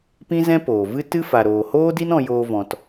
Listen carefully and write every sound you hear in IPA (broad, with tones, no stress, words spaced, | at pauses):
pĩ˦zɛ̃˦poː˨vɨ˦ tɨ˦fa˨ɾoː˨ hoː˦di˦nɔ̃˧ joː˧ vɔ̃˧t